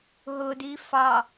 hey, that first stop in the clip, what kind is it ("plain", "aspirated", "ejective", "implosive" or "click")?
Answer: plain